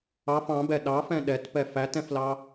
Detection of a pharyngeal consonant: absent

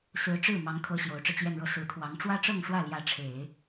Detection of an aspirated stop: present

